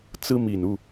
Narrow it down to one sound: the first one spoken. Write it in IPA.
t͡s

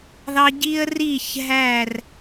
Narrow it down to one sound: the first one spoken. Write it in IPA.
ð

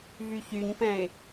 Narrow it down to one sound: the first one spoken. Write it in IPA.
v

